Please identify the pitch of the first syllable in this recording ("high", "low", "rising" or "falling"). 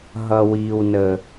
high